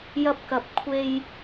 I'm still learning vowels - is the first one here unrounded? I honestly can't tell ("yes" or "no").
yes